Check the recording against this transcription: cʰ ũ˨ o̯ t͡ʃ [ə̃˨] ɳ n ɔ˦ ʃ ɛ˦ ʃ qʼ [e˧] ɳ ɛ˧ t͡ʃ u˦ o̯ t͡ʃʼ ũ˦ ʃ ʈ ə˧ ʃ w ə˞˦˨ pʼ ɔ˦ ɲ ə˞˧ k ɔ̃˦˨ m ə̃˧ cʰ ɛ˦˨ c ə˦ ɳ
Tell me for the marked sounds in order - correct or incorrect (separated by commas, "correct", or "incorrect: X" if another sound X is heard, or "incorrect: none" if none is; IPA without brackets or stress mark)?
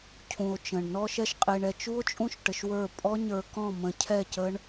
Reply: correct, correct